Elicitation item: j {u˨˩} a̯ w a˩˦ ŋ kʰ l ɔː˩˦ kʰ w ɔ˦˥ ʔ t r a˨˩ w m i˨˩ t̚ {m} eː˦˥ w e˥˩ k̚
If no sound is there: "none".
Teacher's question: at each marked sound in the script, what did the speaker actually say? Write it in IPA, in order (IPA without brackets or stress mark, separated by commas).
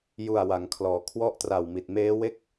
u˨˩, m